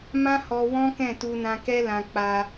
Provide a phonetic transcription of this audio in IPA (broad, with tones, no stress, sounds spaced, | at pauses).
m ã˦ h ɔ˧ w ɔ̃˦ k ɛ̃˦˨ t u˧ n ã˧ k ɛ˦ l ã˧ k͡p a˧